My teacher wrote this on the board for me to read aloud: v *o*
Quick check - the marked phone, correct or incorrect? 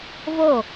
correct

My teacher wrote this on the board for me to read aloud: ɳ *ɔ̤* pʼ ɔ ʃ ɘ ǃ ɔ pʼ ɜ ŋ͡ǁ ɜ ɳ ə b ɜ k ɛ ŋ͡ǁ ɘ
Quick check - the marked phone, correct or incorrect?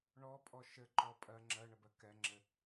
incorrect: ɔ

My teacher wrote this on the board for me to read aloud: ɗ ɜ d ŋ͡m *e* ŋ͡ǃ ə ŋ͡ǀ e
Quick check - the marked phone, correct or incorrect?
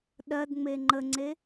correct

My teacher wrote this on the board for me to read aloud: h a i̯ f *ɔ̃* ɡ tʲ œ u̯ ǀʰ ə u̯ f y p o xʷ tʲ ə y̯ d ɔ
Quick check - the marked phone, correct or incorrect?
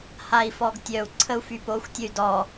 incorrect: ɔ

